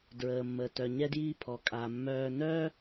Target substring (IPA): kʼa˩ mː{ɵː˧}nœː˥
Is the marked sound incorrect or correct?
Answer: incorrect: œː˧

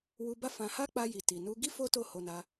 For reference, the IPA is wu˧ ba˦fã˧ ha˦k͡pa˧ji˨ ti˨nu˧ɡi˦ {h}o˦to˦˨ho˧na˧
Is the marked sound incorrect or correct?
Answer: incorrect: f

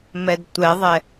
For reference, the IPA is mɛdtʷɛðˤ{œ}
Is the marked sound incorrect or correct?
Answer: incorrect: ɛ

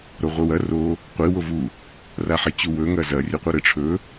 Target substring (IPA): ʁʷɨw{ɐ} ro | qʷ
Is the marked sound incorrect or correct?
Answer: correct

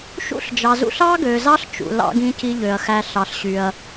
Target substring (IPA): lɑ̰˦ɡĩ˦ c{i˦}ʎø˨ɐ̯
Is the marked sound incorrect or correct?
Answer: correct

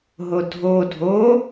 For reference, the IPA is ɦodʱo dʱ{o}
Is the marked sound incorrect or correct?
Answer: correct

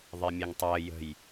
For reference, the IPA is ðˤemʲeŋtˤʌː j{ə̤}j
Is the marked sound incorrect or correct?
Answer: correct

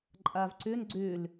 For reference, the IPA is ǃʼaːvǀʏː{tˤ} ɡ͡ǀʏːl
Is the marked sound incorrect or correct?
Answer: incorrect: n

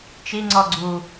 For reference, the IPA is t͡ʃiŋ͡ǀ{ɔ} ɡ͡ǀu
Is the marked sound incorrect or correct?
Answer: correct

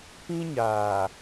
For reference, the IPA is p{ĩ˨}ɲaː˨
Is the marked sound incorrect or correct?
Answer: incorrect: ĩ˦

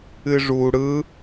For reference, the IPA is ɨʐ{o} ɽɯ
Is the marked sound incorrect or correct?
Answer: incorrect: u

